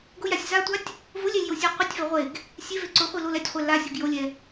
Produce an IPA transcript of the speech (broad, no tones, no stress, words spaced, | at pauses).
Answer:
ɡʊjasʲ zatʷatʲ | vʊlʲɛlʲjosʲe qʷitʲvɛ ʁʷeɡ | sʲeve ǀʊχʷilol ɛtʲχʷɛ lasʲoɡ jolʲɛ